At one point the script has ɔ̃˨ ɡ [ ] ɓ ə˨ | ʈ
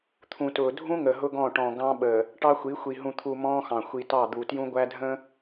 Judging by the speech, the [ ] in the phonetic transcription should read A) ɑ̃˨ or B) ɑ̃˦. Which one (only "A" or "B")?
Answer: B